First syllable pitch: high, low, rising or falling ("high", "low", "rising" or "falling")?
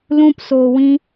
high